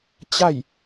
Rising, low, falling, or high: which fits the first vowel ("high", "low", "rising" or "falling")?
falling